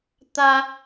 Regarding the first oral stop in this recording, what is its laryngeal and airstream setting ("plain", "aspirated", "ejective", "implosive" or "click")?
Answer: plain